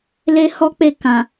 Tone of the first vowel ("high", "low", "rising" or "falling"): high